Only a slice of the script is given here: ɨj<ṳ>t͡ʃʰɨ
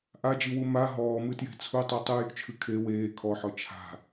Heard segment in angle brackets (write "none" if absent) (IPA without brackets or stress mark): ṳ